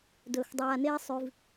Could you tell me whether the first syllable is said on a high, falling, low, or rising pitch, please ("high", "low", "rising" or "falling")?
low